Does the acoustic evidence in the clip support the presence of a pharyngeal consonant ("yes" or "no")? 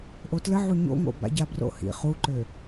yes